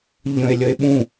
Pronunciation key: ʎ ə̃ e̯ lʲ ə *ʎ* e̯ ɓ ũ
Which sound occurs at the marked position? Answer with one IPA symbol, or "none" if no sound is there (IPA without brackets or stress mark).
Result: none